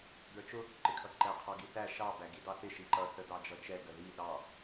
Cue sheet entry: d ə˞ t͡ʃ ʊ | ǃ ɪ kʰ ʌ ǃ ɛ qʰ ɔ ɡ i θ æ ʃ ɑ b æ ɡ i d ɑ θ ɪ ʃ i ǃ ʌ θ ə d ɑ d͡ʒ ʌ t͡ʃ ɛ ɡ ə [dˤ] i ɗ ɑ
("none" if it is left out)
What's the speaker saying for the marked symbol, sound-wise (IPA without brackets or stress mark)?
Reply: ð